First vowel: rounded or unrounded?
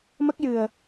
unrounded